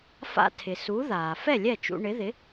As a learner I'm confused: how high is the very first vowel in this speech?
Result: low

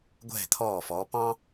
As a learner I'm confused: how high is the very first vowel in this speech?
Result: mid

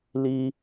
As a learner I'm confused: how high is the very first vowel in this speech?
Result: high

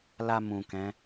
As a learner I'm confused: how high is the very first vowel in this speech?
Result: low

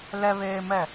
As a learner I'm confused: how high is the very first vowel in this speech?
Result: mid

